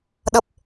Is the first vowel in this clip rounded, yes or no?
no